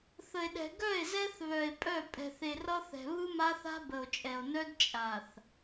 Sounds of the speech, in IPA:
θ ə˨ e̯ ɗ ɛ̤˨ ɡ œ˦˨ e̯ z ɛ˦ θ β œ˨ e̯ pʼ œ˦˨ pʼ ɛ̤˨ θ e˨ r ʌ˦ θ ɛ̤˨ β ɯ˦ m a˦ θ a̤˦ b ə˨ o̯ t͡ʃʼ ɛ˨ o̯ n œ˦ d t͡ʃʼ a˨ θ

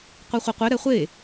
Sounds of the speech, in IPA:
qʷ ɛ χʷ i qʷ e ɾ ɛ χʷ e

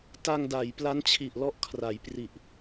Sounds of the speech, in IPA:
t a˧ ŋ d a˩˦ j p l a˦˥ n t͡ɕʰ i˨˩ ʔ l ɔ˥˩ ʔ kʰ r a˩˦ j p r i˨˩ ʔ

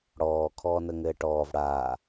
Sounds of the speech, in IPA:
ɽ ɔː kʰ ɔː n ə ŋ ɘː ʈ ɔː v ɽ aː

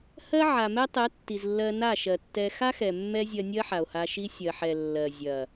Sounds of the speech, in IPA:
h ɜ˦ ʕ a˨ m ɛ˦ tˤ ɛ˨˦ tː i˨ z lː ɜ˧ n a˦˨ ʃ ɜ˨ tː ɛ˧ x a˦ x ɛ˨ mː ɛ˦ zʲ ɜ˧ nʲ ɜ˦ ħ a˨ o̯ h a˧ ʃ i˦ sʲ ɜ˨ ħ ɛ˨ lː ɜ˨ zʲ ɐ˨

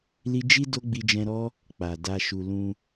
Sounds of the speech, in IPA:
l i˦ d͡ʒ i˦ d o˦ ɡ͡b i˧ d͡ʒ ɛ̃˧ ɾ ɔ˦ | k͡p a˨ d a˧ ʃ u˨ l ũ˧

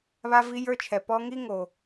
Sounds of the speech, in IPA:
β a˥ v i˥ j ə˞˥ t͡ʃʰ ɛ˩ p ɔ˥ ŋ i˥ ŋ o˩

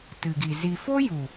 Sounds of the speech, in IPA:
t ɨ˨ ɡ i˨ z i˧ f o˦ j u˨

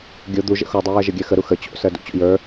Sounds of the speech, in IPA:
ɡʲ o d̪ u ʒ ə̰ x o dˤ u j ɜ ʒ ə ɡʲ ɜ x ə ɾ u x ə t͡ɕ o̰ s ɜ d ṵ t͡ɕ o̰ j ə˞

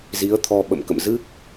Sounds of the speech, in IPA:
z i˨˦ ə̯ t̪ʰ ɔ˧ ɓ ə̰˧˨ m k ə̰˧˨ m z ɨ˦˥ k̚

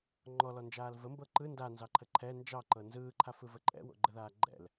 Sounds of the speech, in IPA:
ŋ͡ǃ ɔ l ɔ n d͡ʒ aː l v ə m b ɤ ǃ ɯ n d a n z ɑ ǃʰ ə ǃʰ ɛ n d͡ʒ ɑ ǃ ɤ n z ɯː ǃʰ a f ɯ v ə ǃʼ ɛ̰ w o̰ ɡ͡ǃ ə ð aː ɡ͡ǃ ɛ̰ l

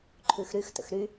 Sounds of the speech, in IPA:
ǃʰ ʉ x ɾ y x t ə̰ x ɾ y

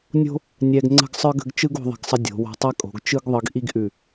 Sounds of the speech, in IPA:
nʲ o̤˥ | nʲ ɛ˧ ɡ ŋ͡ǀ ə̤˥˧ ɡ sˤ ə˞˥ ɡ ə̤˥˧ ɡ t͡ʃ ɯ˥ ɡ o̤˧ ðˤ ə̤˧˩ ɡ sˤ ə˧ dʲ o̤˩˧ w o̤˧ tˤ ɛ˥ kʼ o̤˩˧ ɡ t͡ʃ ɯ˥ ɡ ðˤ ɯ˧ ɡ ʔ i˥ ɡ ʔ ʉ˧˩

